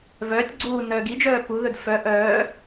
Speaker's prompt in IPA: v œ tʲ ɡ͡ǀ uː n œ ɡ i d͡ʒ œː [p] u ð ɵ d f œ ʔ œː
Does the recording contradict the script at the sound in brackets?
no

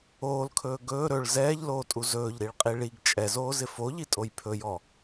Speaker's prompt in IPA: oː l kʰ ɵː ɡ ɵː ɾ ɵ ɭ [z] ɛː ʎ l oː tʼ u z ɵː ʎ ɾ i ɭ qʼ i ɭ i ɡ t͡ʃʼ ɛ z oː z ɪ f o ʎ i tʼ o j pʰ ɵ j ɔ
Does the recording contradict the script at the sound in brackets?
no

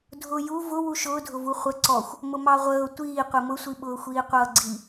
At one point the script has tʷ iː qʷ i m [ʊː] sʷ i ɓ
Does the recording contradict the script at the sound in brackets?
yes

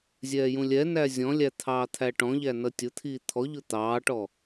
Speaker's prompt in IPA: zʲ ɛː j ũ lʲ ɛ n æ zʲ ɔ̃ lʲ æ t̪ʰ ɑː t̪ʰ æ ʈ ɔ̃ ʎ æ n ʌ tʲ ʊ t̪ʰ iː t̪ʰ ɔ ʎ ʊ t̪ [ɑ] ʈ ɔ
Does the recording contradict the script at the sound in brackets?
yes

